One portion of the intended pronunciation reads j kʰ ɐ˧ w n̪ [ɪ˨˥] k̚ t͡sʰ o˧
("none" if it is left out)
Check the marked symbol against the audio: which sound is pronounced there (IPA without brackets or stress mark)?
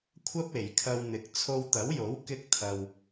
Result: ɪ˨˥